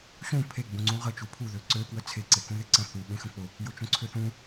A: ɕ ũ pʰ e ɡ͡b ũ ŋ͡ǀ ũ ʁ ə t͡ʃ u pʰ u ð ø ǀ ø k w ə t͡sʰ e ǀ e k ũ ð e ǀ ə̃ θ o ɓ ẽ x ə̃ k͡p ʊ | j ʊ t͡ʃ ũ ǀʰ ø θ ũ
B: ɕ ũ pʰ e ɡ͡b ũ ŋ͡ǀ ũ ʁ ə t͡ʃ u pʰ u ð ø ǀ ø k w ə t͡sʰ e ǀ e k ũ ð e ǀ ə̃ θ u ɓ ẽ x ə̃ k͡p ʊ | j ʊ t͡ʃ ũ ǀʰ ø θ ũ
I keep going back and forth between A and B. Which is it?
B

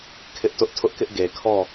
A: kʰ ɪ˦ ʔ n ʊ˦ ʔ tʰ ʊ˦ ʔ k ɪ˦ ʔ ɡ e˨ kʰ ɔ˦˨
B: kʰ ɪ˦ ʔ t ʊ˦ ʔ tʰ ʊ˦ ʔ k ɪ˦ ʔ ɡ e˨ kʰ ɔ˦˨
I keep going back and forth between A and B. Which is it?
B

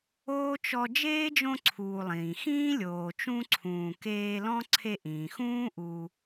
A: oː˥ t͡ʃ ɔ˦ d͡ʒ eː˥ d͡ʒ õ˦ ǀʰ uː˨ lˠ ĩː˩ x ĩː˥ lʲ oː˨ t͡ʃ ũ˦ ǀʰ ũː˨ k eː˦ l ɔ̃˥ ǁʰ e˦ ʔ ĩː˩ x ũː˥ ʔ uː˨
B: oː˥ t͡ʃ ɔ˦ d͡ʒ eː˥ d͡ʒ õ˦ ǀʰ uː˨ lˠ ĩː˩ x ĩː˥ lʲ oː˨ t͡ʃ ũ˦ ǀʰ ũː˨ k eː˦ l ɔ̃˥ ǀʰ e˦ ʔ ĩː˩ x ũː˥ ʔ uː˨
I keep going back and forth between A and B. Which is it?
B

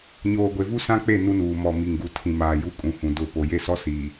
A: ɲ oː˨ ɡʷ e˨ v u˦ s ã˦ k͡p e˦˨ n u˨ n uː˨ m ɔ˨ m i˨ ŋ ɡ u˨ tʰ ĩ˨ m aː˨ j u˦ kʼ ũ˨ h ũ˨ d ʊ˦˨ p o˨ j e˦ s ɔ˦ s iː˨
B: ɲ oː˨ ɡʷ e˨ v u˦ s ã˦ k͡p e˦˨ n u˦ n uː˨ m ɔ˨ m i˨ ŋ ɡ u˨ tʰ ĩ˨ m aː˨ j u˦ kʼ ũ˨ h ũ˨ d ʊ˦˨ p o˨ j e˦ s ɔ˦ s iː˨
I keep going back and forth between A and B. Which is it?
B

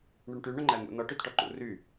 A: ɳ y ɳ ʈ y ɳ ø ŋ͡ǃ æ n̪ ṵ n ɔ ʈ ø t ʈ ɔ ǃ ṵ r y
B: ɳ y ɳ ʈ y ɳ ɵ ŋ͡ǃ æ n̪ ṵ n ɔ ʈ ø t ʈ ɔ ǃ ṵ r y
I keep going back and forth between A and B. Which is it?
B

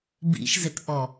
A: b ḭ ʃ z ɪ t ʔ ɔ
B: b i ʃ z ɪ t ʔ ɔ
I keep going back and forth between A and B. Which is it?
A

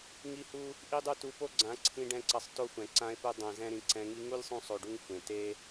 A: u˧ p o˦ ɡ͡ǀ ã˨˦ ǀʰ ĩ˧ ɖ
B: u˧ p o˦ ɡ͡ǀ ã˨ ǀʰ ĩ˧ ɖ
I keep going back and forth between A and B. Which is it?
A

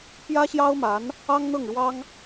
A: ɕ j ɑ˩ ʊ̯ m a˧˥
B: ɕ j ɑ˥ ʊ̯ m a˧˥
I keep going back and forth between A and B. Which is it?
B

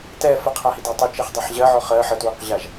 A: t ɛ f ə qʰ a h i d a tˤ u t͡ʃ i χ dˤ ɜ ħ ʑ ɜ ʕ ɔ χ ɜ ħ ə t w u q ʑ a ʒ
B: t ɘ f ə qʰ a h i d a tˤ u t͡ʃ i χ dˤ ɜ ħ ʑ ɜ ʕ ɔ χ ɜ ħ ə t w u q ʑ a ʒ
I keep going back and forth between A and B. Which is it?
A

